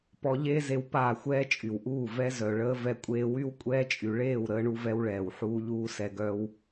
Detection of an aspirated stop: absent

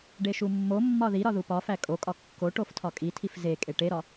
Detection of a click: absent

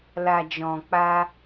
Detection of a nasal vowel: present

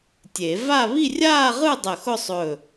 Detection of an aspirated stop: absent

